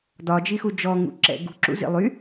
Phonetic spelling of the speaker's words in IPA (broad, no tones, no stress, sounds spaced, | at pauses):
d ɒ d͡ʒ i x u d͡ʒ ɔ ŋ ṵ ǁ ɛ̰ ɡ ṳ ǁ ṵ z ḭ lˠ y